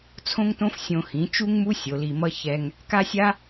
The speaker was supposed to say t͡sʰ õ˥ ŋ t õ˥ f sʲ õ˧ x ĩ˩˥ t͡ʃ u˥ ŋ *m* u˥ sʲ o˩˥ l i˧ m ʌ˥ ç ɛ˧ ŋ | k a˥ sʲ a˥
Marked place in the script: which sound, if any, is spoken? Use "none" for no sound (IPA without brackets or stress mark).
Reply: m